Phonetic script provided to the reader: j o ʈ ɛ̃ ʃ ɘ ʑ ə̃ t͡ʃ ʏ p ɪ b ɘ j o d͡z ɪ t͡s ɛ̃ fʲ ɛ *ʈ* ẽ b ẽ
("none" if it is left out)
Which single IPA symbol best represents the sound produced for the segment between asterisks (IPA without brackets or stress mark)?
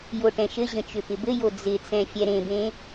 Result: ɾ